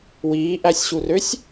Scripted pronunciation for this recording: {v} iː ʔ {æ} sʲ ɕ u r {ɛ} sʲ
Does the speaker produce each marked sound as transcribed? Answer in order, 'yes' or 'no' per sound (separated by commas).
no, yes, no